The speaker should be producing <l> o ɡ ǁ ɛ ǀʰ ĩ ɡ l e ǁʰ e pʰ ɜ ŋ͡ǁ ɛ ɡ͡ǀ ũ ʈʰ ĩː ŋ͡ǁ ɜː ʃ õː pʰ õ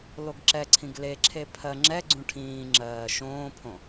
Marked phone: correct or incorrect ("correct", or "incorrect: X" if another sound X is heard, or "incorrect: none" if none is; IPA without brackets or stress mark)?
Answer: correct